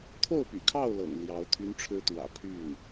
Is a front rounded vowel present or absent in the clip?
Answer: present